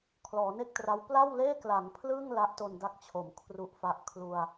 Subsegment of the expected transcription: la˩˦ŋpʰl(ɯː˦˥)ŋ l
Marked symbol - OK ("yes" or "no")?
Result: no